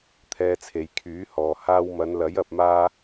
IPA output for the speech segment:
t̪ʰɛː˧t͡sʰe˨j kʰyː˨˥ hɔː˨ haː˧wmɐ˨˧nlɐ˨˥j ɐ˨p̚maː˧

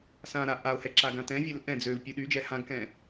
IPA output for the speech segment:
sãɾa ʔao̯hɛ ǁaɡãtɛ̃vʲɛl ʔɛ̃ d͡zøv pʲuɗyd͡ʒɛ hãɡkɛ̃

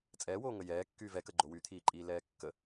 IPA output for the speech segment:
t͡sʼɛːwoːŋə jɛːkːyːv ɛkə ɡ͡ǃowyt̪ʰiːǃʼiː lɛːkːə

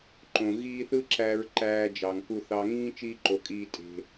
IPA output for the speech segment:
ǃõ˩ ɣiː˦θɯ˥ ǁæ˨ɹ ǃæː˨ d͡ʒɑ˩ŋku˨ θɑ˨ŋĩː˦ t͡ʃiː˦ǃo˩kʼiː˨ tʼe̤˩

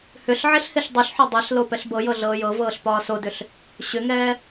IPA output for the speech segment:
hʏɬ ʕeɬheɬdˤyɬħɒ dˤeɬ lopɛɬbɤjɤ ɮɤːjɤvɤːɬ pɒːsodʏɬ | ɕʏŋɛː

